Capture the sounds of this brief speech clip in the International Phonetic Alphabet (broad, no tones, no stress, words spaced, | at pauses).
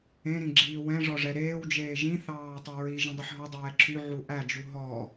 ẽɾĩɡ͡ǁiː wɛ̃ʐɔʐɛ ɾeːwd͡ʒeː ʒĩθɑː tˤɛɹi ʒĩdˤeħɦɔ dˤɛːǁʰy ʕuʔæd͡ʒu ɦɔ